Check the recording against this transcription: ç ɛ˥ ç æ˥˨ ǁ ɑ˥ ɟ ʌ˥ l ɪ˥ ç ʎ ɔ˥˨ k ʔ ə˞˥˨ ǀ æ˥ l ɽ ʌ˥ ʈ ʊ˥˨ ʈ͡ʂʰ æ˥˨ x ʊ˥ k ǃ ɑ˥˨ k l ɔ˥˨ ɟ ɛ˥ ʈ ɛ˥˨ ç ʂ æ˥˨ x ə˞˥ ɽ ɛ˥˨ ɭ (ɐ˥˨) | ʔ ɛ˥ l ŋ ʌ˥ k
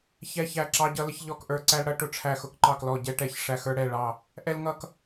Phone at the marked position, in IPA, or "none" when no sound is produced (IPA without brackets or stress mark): ɑ˥˨